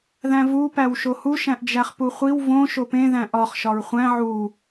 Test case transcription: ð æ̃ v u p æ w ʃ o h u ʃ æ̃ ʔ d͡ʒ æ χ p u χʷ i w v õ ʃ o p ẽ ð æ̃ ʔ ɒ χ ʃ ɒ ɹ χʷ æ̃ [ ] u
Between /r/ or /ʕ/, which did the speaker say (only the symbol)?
ʕ